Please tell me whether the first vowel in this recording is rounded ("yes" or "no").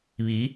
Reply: no